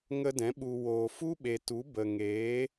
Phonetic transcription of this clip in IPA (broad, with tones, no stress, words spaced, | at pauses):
ŋə˧dɛ̃˨˦ ɓu˨ woː˨fu˦ɓe˨ tu˨˦bə˨ ŋeː˨˦